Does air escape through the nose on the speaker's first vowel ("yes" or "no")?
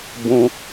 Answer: yes